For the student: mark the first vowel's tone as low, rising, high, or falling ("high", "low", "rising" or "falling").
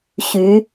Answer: rising